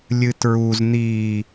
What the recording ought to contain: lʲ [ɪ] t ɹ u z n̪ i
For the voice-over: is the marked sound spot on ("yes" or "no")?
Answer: no